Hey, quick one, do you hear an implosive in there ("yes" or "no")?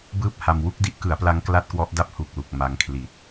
no